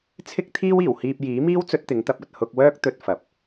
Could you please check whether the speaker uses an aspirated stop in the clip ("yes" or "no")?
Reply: yes